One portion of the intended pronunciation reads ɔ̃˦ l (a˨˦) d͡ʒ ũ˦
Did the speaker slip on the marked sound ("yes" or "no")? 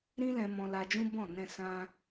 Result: yes